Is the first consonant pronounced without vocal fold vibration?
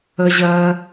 no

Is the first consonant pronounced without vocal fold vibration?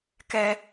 yes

